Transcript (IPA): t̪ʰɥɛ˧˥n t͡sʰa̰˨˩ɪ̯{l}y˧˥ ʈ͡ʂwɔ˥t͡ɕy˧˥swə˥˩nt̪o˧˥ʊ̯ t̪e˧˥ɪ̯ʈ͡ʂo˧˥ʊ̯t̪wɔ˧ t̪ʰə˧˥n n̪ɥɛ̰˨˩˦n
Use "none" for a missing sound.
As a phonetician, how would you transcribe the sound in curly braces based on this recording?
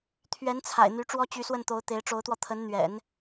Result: n̪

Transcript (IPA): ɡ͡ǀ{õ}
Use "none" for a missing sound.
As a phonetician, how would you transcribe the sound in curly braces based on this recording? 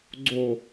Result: o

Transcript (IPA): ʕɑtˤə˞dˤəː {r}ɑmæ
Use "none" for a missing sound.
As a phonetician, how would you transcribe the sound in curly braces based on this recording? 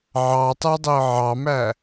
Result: ʕ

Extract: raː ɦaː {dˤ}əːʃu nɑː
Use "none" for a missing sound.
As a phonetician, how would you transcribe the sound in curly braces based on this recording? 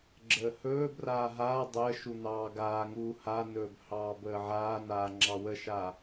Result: dˤ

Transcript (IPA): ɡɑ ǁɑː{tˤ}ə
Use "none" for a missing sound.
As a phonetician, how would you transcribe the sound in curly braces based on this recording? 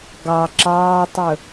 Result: tˤ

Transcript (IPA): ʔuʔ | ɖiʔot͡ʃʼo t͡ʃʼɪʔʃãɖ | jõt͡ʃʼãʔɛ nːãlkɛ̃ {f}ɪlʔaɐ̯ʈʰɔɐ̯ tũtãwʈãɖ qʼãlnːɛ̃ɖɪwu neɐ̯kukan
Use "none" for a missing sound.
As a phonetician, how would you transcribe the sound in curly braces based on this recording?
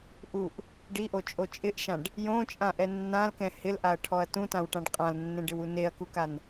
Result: h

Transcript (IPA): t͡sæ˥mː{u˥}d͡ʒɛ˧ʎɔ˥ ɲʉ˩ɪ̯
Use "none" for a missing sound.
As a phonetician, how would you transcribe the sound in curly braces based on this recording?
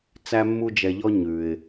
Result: u˥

